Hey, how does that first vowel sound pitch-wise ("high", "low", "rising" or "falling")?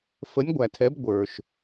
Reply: rising